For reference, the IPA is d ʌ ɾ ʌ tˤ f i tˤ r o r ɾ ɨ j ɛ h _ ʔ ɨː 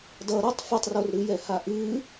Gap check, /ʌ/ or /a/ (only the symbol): a